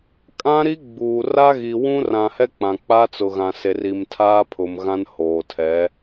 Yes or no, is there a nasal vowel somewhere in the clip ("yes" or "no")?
yes